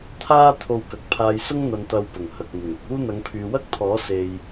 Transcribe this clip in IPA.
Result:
t̪ʰ aː˥ t̪ʰ o˧ w k ɐ˨ k̚ pʰ aː˧ j s ʊ˥ ŋ n̪ ɐ˧ n t̪ ɐ˧ w p ʊ˨˩ ŋ h ɐ˨ k̚ n̪ ɪ˨˩ ŋ ɪ˧ k̚ uː˥ n̪ ɐ˨˧ ŋ pʰ yː˨ w ɐ˥ k̚ t̪ʰ ɔː˨˥ s e˨ j

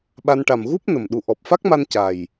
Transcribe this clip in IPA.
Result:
ɓ a˧ n ʈ a˨˩ m ɣ u˦˥ p̚ n ə˨˩ m ɗ u˨˩ ʔ ɔ˨˩ p̚ f a˦˥ k̚ m a˧ n c a˨˩ j

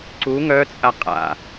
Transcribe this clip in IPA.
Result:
ǀ u ŋ œ t͡sʼ a qʼ a̰

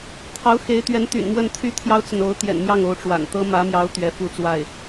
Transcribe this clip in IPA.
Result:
t̪ʰ ɑ˧˥ ʊ̯ x e˧˥ ɪ̯ t̪ ɥ ɛ˧˥ n t̪ y̰˨˩ n m w ə˥˩ n t̪ʰ y˥ t̪ʰ j ɑ˥ ʊ̯ t͡s ə˨ n o˧˥ ʊ̯ t̪ j ɛ̰˨˩ n m j ɑ˥˩ ŋ o˧˥ ʊ̯ ʈ͡ʂ w a̰˨˩ n t̪ ɤ˥ m ä˧˥ m j ɑ˧˥ ʊ̯ t̪ ɥ ɛ˧˥ f u˥˧ t͡s w a˥˩ ɪ̯

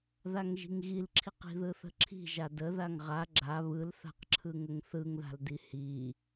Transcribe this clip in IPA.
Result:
ð a ŋ ʒ i̤ ŋ ɣ i l ǁʰ i q i̤ ð ɯ θ ə̤ ǁʰ i̤ ʒ a d ə ð a ŋ ʁ a ɡ͡ǁ a β ɯ l θ a̤ q ǁʰ ɯ ŋ ə ŋ θ ɯ ŋ ð a̤ l d i h i

